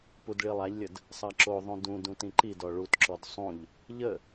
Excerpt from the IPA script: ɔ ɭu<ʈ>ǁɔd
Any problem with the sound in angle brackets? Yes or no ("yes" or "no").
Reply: yes